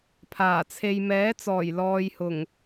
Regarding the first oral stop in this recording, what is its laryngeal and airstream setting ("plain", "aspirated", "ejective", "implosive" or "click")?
aspirated